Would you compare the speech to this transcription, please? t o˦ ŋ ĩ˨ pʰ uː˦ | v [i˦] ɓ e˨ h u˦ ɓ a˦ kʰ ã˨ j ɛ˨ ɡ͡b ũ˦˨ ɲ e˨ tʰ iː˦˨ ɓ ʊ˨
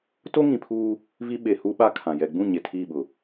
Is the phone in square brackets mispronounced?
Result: no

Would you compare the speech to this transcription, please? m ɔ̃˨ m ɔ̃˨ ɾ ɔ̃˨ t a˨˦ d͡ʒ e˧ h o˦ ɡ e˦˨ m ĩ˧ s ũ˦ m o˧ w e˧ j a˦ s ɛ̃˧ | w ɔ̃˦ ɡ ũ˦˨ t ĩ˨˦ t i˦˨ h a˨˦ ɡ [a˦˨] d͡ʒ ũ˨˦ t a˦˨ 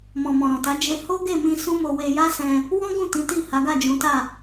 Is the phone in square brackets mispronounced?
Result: no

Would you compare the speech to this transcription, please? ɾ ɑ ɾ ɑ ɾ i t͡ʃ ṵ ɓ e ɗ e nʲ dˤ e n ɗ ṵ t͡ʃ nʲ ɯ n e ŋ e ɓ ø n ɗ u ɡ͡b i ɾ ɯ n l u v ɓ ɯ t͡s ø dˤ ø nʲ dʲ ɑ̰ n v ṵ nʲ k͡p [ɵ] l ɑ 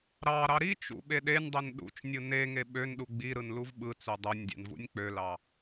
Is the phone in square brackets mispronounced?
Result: yes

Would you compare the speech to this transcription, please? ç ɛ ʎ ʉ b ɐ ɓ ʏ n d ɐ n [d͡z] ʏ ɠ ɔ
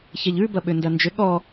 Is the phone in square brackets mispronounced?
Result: yes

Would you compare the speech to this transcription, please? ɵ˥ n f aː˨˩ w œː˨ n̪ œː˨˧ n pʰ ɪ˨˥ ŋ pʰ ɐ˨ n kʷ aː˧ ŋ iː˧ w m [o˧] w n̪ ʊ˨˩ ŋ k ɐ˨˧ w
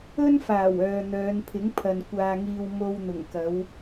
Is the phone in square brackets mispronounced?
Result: no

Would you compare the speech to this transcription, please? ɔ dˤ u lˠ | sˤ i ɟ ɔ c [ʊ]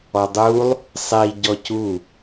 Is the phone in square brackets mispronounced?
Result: yes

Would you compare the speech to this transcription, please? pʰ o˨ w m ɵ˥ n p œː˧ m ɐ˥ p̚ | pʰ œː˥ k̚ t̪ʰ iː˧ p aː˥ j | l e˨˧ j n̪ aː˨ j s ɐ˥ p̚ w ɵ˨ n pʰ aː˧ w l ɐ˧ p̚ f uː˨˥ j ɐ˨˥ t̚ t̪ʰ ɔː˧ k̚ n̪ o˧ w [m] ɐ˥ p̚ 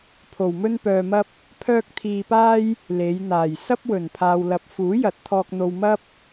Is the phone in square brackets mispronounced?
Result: no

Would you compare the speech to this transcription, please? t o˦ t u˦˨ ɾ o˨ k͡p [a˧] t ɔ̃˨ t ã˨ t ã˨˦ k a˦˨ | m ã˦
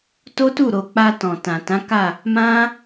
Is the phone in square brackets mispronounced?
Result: no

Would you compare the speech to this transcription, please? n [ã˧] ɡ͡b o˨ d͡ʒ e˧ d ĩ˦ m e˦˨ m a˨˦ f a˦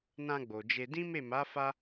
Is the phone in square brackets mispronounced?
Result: no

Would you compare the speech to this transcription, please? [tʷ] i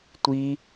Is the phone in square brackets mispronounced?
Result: no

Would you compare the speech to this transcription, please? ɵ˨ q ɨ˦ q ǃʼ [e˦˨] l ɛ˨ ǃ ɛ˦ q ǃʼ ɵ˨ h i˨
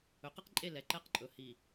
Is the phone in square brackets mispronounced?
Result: no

